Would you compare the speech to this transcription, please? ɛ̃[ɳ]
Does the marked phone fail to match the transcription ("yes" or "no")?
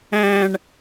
no